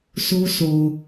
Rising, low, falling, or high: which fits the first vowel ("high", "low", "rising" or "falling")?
high